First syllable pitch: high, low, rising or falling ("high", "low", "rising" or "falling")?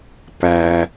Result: low